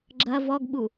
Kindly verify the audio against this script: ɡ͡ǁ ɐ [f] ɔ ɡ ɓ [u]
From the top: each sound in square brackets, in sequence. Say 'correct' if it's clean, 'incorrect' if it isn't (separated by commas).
incorrect, correct